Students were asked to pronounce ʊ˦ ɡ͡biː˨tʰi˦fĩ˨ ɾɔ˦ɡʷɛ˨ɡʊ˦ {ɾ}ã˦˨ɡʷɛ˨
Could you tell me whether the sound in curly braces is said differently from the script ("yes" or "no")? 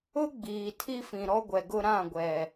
no